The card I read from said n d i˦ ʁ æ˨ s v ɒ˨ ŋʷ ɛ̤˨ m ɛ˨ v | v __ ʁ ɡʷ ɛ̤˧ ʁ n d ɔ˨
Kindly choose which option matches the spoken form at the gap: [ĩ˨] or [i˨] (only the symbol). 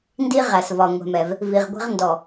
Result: i˨